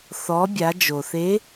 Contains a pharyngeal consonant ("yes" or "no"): no